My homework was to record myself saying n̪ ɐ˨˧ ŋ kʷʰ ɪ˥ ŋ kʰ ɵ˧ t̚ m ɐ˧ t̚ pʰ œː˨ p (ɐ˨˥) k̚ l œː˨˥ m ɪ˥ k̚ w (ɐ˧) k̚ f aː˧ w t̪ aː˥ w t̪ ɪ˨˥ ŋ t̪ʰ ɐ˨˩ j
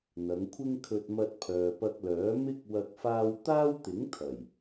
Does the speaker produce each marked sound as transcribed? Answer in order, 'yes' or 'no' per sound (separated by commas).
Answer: no, yes